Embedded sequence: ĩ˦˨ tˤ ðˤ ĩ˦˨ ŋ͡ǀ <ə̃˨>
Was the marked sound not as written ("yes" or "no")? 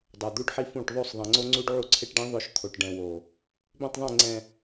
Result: yes